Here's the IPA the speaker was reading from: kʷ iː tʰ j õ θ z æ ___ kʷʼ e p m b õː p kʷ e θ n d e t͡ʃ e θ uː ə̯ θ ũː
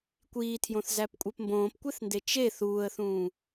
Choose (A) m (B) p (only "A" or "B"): B